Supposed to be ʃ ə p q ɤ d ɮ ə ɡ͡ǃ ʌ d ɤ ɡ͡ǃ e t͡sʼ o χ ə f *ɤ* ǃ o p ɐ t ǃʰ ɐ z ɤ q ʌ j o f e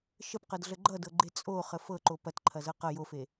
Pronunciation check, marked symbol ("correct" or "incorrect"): correct